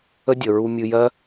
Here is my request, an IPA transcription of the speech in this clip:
ə˦ dʲ ə˨ ɹ u˧ mʲ ɨ˧ j ɜ˦

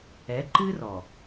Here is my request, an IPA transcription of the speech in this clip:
ɛ˨˦ ǃ ɨ˦ r ɔ˨

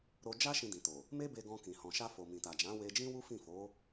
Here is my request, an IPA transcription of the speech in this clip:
ɾ o˧ d͡ʒ a˦ ʃ ĩ˧ d ĩ˨ t o˨ | m e˦ b e˧ ɡ ɔ̃˧ k ĩ˨ h ɔ̃˨ ʃ a˧ f o˨ m ĩ˨ t a˨ d͡ʒ ã˨˦ w e˧ d͡ʒ ĩ˦ w u˦ f ĩ˦˨ f o˨˦

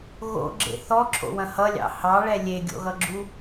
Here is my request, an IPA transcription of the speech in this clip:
ɣ o̰ ɡ͡ǁ ḛ θ ɔ ǁʰ o̰ w ɐ̃ h ʌ lʲ ɑ̰ h ɑ ɭ ɛ lʲ e ɡʲ o̰ ɣ ʌ ɡ͡ǁ u

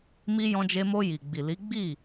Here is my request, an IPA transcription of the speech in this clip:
m i˧ j ɔ̃˧ d͡ʒ e˧ m o˧ j i˨ ɡ͡b i˨ l i˨˦ ɡ͡b i˦˨

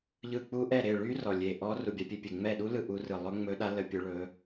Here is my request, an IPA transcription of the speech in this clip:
ʎ ɯ˦˨ k͡p u˦˥ ʔ ɛ˦˨ ɾ e˦˨ ɭ y˦˥ r ɔ˦˨ lʲ e˦˨ ʔ ɔ˦˥ r u˦˨ bʲ a˦˥ pʲ e˦˥ pʲ e˦˨ ŋ͡m ɛ˦˨ ɗ u˦˥ l ɯ˦˨ ʔ u˦˥ r ɯ˦˨ lˠ ɵ˦˥ ŋ͡m ɵ˦˥ ɗ a˦˥ l ə˦˥ pʲ ɵ˦˥ ɭ ɵ˦˥

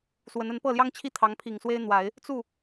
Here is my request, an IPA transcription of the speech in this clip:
s w ə˧˥ n ə˧˥ n p ɤ˥˩ l j ɑ˥ ŋ t͡ɕʰ i˥ t̪ʰ ɑ˧˥ ŋ pʰ i˨˩ ŋ s w e˥ ɪ̯ n̪ w a˨˩˦ ɪ̯ | t͡s u˥˩

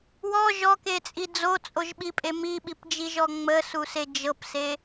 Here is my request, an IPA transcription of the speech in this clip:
w ɔ ʒ ɔ k e t͡sʼ i d͡z o t͡sʼ o ʒ ɓ i pʼ e m i ɓ i p d͡ʒ i ʒ ɔ ŋ͡m ə s u s e d͡ʒ ɤ p s e

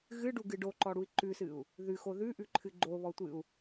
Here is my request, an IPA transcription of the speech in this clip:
ɣ ɨ ɖ u ɡ ɨ ɖ o ǃ ɔ ɽ u i̯ ǃ ʉ s ɨ u̯ | ð ʉ x o ð ʉ ʔ ʉ ǃʰ ɨ ɡ͡ǃ o β ɔ tʷ ɨ u̯

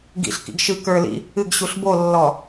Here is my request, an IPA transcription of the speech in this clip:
ɡ ḭ ɬ k ḭ ɡ ʃ ɨ k ə˞ l ḭ | ɨ ɡ ɕ u ɬ b o lː ɔ

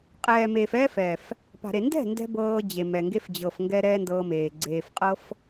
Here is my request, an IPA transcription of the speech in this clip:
qʼ ɛː˨ m eː˨ f ɛː˧ f ɛː˨ f | p a̤˨ ɾ e˨ n d ɛ̤˦˨ n d ɛ̤˧ b ɤː˧ d͡ʑ e˨ m ɛ˨ ŋ ɡ e˦ f d͡ʑ ɤ˨ f ŋ ɡ ɛ˧ ɾ ɛː˦ n d ɤː˧ m eː˨ ɡ͡ǀ eː˨ f qʼ ɤ˦ f

